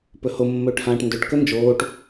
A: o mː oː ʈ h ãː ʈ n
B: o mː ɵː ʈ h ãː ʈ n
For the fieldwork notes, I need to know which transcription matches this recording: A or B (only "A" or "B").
B